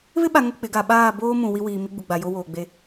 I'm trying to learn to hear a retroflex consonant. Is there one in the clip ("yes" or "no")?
no